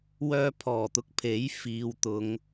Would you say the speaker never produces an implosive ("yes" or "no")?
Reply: yes